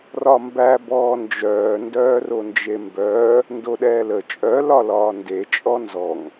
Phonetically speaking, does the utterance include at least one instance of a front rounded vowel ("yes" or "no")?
yes